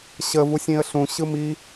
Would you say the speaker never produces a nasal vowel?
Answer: no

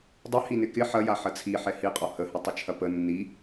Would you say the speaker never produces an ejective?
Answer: no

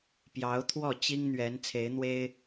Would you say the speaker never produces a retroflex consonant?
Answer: yes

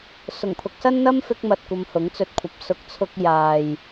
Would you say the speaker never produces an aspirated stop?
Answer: no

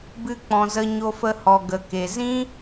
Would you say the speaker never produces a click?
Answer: yes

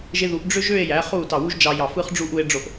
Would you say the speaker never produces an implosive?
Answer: yes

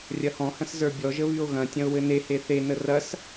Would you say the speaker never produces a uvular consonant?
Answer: yes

